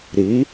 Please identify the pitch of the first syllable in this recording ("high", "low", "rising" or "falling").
rising